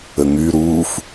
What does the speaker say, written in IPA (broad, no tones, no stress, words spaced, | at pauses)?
əŋy ɾuːf